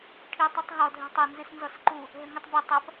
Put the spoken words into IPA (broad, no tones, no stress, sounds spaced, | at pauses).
ʈʰ i tˤ ɐ tˤ ɦ ɔ dʱ ɛ̤ tˤ ɘ n z ɨ s n z ɔ s ǃ u | ɦ ɘ ŋ ɨ tˤ b ɛ tˤ ɐ p